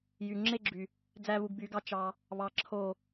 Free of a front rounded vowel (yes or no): no